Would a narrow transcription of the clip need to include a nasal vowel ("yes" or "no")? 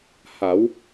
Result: no